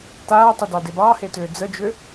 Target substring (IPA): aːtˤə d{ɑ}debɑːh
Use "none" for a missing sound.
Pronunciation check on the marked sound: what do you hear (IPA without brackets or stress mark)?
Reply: ɑ